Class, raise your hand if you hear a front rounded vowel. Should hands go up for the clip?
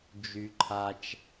yes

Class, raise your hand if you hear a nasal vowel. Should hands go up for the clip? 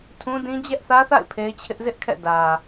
yes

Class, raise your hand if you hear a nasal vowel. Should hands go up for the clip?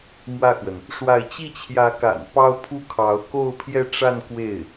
no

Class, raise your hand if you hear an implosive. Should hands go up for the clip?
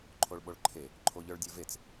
yes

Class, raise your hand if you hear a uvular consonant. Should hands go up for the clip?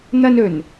no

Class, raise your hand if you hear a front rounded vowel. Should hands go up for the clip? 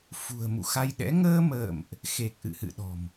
no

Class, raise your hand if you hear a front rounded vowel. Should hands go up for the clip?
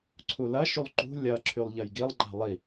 yes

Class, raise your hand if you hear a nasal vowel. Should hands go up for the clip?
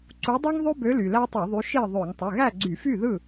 no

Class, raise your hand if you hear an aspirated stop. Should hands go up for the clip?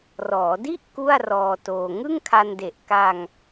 yes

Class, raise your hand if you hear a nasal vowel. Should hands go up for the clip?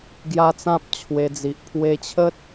yes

